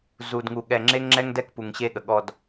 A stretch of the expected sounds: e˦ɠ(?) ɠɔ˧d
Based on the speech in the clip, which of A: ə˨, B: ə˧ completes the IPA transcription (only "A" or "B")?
A